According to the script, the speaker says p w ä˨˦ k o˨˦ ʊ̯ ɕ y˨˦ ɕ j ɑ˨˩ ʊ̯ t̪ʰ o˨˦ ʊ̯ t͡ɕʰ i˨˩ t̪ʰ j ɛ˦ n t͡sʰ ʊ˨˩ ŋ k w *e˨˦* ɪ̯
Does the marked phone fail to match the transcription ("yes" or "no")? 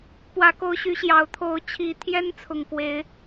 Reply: no